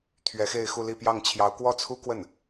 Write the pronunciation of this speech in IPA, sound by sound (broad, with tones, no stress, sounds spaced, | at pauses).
t̪ʰ ɥ ɛ˧˥ x e˥˧ ɪ̯ x u˥˧ l i˥˧ p j ɑ˥˩ ŋ t͡ɕʰ j ɑ˧˥ ʊ̯ k w ɔ˥˩ t͡sʰ u˥ k w ə˥˩ n